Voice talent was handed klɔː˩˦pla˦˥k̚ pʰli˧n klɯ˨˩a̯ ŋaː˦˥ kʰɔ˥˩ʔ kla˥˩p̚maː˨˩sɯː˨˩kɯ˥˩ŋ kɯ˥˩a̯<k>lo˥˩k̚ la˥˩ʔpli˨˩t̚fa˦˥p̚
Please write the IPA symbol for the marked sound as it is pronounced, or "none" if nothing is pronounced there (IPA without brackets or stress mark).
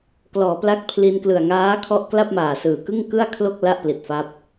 kʰ